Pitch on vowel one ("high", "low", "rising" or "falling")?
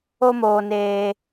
high